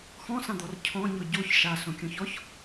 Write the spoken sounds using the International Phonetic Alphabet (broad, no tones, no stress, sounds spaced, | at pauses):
x ɔ̃ s ã d̪ ɔ r cʰ ɔ̃ ɲ ɔ ɟ o ç ʃ a s õ kʲ ɔ̃ ç ɔ ç